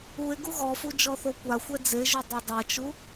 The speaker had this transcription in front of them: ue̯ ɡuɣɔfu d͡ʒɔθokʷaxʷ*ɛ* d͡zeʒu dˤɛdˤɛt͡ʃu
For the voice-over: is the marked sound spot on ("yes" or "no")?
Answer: yes